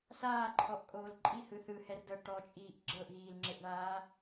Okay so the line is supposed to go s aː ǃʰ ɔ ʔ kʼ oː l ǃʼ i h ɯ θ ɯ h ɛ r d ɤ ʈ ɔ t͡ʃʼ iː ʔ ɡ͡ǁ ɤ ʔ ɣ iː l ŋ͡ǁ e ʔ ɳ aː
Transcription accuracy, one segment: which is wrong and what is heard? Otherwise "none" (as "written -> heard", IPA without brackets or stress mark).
none